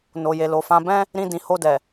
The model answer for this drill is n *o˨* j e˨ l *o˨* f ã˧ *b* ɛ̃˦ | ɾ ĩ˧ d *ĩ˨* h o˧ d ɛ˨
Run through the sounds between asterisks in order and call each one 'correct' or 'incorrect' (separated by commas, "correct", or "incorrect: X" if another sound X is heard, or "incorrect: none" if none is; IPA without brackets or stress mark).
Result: correct, correct, correct, correct